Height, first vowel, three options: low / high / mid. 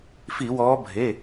high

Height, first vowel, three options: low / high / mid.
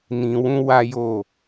high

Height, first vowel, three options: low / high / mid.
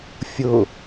high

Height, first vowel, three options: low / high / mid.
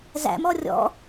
low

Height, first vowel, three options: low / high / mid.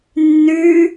high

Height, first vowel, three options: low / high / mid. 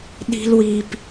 high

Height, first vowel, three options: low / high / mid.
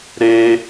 mid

